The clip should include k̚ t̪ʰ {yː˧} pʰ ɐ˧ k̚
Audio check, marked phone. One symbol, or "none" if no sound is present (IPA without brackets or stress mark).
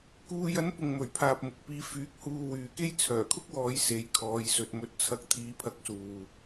iː˧